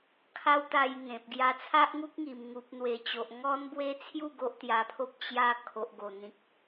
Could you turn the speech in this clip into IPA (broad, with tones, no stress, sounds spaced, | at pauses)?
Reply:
kʰ a˦ w t̪ a˧ j ŋ ẽ˨ p̚ ɡ j a˧ t͡sʰ a˦ ʔ ŋ u˦ k̚ ŋ i˨˩ m ŋ u˨ p̚ n̪ w e˨˩ t͡ɕ o˨ ʔ ŋ ɔ˦ n b w e˦ t͡sʰ j u˥˧ ɡ o˦ ʔ t̪ j a˧ pʰ o˦ p̚ t͡ɕ j a˥˧ kʰ o˨ ʔ ɡ o˨˩ n̪ ĩ˨ k̚